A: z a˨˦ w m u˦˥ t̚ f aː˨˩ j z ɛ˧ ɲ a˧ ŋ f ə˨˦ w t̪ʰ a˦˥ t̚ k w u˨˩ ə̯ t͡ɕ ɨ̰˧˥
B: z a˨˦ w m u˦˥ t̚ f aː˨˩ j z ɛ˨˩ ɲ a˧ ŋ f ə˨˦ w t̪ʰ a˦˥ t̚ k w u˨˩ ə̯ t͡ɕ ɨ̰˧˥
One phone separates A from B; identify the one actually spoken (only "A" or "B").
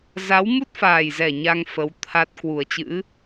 B